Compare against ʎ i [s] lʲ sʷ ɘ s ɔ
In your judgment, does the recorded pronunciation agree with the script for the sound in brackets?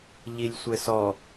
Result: no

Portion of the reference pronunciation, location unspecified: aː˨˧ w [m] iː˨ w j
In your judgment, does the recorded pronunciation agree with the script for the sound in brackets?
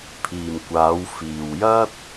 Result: no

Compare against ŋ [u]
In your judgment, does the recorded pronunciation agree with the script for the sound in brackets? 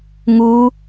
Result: yes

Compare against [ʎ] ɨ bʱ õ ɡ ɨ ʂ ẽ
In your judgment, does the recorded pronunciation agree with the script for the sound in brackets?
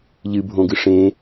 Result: yes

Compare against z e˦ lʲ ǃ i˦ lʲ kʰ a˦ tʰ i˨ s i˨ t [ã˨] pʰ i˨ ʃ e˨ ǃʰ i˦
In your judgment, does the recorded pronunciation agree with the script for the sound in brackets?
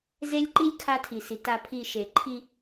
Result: no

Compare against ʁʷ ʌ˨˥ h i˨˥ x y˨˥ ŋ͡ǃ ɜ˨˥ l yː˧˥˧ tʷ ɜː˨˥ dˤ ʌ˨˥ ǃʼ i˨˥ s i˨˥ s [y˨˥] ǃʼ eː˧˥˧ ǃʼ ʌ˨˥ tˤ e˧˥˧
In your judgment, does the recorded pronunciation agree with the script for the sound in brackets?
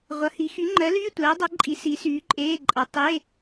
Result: no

